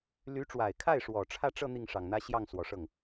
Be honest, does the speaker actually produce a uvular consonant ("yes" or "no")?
no